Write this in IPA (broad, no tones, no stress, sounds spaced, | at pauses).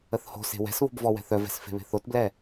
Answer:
ə θ h o̤ s e̤ w ɛ̤ s β o̤ b v ɔ w ɛ̤ θ œ v ɛ̤ s f e̤ β e̤ θ o t b l ɛ